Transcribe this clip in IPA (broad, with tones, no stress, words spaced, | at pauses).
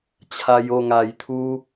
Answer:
t͡ɕʰa˧jo˥˧ŋa˨˩jt̪ʰu˦